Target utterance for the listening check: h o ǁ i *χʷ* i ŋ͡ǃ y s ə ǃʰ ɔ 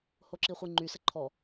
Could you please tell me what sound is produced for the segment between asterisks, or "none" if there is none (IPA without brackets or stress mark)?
χʷ